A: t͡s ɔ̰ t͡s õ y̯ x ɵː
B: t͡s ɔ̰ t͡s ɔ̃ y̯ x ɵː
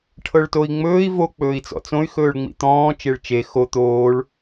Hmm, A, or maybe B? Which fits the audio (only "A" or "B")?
A